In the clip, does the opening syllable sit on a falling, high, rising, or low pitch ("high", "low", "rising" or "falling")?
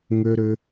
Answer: high